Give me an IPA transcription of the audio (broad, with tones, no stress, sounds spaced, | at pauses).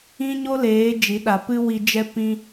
ĩ˦ ɲ o˦ l eː˨˦ d͡ʒ i˨˦ ɗ a˨ p ɨ˦ w i˧ d͡ʒ ɛ˦ p ĩ˦